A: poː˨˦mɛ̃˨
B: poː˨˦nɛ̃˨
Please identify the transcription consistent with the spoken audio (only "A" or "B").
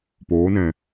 B